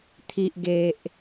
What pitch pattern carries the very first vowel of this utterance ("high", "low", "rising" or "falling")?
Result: low